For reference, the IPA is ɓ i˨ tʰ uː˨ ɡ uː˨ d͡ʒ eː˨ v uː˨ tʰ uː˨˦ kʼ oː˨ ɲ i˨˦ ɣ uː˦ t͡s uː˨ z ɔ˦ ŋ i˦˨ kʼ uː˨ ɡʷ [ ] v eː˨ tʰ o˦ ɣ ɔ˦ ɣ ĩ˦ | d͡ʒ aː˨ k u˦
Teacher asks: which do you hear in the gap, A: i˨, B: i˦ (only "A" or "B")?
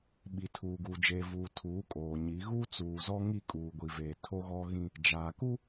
A